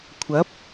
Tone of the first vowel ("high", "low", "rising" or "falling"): rising